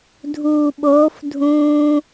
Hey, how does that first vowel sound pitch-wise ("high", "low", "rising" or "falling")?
low